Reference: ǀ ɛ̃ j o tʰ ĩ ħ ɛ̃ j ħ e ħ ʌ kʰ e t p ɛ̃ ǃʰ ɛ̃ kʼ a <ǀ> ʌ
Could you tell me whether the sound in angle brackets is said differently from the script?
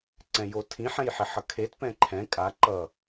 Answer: yes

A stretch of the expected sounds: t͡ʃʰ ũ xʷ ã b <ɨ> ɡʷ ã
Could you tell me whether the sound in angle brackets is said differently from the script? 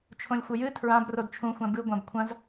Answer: no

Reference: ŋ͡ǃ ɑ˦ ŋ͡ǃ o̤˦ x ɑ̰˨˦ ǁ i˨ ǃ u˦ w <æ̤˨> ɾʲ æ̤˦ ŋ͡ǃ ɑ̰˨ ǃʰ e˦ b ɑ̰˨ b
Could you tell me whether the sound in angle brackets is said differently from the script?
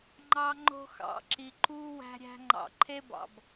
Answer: yes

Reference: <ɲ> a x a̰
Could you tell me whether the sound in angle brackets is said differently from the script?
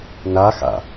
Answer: yes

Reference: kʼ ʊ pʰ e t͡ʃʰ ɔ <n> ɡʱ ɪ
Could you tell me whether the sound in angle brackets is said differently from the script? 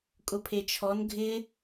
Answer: no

